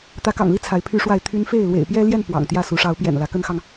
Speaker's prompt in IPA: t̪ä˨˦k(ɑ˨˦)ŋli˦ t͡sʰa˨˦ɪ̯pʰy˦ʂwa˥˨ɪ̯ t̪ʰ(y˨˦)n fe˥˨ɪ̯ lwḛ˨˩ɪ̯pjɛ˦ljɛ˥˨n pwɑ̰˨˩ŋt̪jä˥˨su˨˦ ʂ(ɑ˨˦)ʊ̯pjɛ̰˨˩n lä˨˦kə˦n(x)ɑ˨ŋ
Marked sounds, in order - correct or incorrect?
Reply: incorrect, incorrect, correct, correct

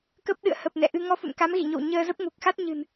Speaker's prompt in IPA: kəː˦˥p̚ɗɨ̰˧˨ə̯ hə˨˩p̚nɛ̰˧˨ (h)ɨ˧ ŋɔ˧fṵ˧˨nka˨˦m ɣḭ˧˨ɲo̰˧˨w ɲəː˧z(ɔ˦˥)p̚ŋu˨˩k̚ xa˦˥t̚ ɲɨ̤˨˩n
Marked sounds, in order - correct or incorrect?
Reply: incorrect, incorrect

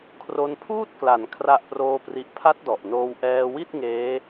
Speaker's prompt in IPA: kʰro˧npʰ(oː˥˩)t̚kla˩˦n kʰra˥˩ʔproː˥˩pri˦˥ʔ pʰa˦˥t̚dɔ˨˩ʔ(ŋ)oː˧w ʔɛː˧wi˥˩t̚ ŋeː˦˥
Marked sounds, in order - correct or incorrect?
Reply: incorrect, incorrect

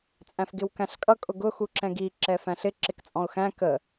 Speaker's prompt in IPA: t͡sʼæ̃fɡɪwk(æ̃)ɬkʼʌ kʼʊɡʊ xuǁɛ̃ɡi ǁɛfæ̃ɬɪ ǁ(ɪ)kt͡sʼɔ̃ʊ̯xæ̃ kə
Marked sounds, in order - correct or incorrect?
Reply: correct, correct

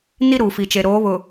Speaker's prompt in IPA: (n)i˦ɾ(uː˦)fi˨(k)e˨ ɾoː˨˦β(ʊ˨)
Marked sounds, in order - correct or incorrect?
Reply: correct, incorrect, incorrect, correct

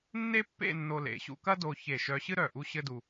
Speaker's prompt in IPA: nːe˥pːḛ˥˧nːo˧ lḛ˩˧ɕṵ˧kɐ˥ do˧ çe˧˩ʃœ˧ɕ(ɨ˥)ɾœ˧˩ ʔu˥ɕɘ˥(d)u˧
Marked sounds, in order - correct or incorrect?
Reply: correct, correct

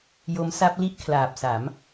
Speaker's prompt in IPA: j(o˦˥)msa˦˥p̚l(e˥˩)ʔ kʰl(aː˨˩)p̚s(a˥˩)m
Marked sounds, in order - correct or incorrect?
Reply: correct, incorrect, correct, incorrect

